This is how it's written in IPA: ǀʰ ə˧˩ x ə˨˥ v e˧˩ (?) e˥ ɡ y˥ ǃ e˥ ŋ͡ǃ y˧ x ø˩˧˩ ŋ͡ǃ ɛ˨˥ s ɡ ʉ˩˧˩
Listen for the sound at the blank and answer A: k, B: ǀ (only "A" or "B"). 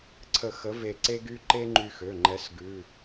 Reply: B